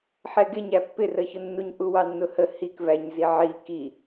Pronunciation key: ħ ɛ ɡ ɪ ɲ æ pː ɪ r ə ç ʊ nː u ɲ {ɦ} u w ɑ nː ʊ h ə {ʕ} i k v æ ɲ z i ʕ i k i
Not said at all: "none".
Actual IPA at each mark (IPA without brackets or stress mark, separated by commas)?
ʔ, h